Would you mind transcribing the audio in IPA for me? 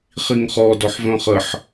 χ i ŋ χ ɔ d ɔ ħ v œ̃ χ ə ħ

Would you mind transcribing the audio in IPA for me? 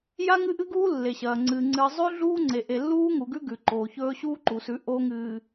j a˦ ŋ ɨ˦ ʔ ɨ˦ ɡ uː˦ lː e˨ ɕ ɐː˨ ŋ͡ǀ ɨː˨ ŋ͡ǀ ɨː˨ zˤ ʉ˦ ɮ uː˦ ŋ͡ǀ e˨ ʔ e˨ lː uː˦ ŋ u˨ ɡ ʉ˦ ɡ ʉ˨ ǃ oː˨ ç ɵː˦ ɕ uː˦ ǃ u˨ s ʉ˨˦ ʔ oː˦ ŋ ɨː˨

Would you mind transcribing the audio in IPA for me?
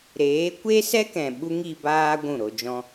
ɾ eː˨˦ kʷ e˦ s ɛ˦ k ɛ̃˨ ɓ u˦ ŋ i˧ b aː˦ ɡʷ ũ˦˨ ɾ o˧ d͡ʒ ɔ̃˦

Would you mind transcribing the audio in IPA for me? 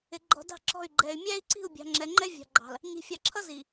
ɪ˨ ɡ͡ǃ ɔ̤˨ d ɑ̤˦˨ ǁ ɔ̤˦˨ y̯ ɡ͡ǃ ɛ˨ y̯ mʲ æ˦ i̯ ǀ i̤˦˨ u̯ bʲ ɑ̤˨ ŋ͡ǁ ɛ˨ ŋ͡ǃ ɛ˦ vʲ ɑ̤˨ ɡ͡ǃ ɑ̤˨ l | ɲ i̤˨ fʲ ɑ˨ ǁʰ ʌ˦ z i˨

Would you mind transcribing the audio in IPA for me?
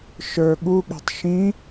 ʃ ə˞ ɠ u ɠ ɛ̤ tˤ ʃ ĩ

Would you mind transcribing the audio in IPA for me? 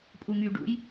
pʼ u ŋ y ɖ ṵ j

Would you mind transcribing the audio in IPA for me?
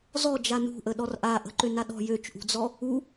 z ɔ d͡ʒ a n ṳ ʔ ə ɗ ɔ r ʔ a ʔ ə̤ ǃ ø n a ɗ ɔ̤ j ø t͡ʃ ʔ ṳ d͡z ɔ | u

